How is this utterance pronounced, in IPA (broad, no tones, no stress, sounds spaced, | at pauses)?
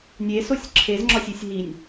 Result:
nʲ e s o sʲ ǁʰ e z ŋ͡ǁ ɒ sʲ i sʲ ɦ i nʲ